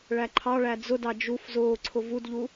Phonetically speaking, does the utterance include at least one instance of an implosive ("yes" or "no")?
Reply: no